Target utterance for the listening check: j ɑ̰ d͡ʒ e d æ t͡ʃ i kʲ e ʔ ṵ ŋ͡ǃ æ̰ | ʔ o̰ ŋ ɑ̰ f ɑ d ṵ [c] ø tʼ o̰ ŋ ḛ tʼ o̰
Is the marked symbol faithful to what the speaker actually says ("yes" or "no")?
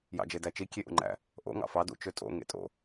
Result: no